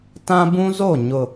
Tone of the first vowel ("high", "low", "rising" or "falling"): high